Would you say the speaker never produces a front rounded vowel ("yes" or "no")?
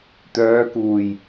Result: no